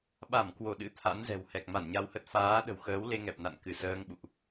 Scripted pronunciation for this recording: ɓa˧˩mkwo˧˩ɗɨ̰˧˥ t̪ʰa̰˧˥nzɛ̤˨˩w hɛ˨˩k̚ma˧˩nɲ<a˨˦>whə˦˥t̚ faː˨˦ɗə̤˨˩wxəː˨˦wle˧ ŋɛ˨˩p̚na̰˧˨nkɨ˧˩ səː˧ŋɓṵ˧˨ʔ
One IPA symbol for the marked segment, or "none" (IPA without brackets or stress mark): a˧